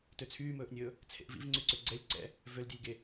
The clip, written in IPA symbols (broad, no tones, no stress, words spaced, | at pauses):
tøt͡sʰyːmɵːʔnʲɵː | t͡sʰḛʔvḭvŋ͡ǀyǀø ɡ͡ǀɛlʲ ǀɛ̰ | vøldʲelʲɡe